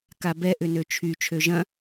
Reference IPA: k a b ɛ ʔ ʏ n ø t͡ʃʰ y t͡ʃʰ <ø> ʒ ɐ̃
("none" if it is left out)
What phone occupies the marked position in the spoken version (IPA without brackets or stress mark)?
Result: ø